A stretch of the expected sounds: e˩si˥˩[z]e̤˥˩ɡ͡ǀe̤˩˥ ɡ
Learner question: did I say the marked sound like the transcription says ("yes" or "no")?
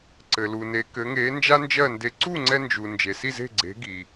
yes